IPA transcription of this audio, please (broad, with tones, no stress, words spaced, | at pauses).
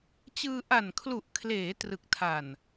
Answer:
t͡ɕɯː˧ ʔa˨˩nkʰlu˨˩ʔkʰleː˩˦ trɯ˨˩k̚tʰa˨˩n